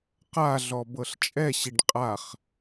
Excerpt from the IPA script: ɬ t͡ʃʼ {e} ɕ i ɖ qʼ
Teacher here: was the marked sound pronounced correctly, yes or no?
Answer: no